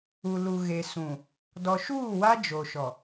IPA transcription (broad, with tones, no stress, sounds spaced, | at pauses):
u˨ l u˨ ɣ e˨ s ũ˨ | d ɔ˨ ʃ uː˦˨ w a˦ d͡ʒ o˨ ʃ ɔ˨